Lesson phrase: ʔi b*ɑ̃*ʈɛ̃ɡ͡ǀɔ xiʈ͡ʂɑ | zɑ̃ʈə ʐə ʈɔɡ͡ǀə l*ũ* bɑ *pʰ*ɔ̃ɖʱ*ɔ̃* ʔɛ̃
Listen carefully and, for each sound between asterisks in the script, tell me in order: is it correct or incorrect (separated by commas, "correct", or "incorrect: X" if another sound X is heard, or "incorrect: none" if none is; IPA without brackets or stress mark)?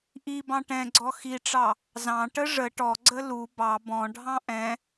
correct, incorrect: u, incorrect: b, incorrect: ɑ̃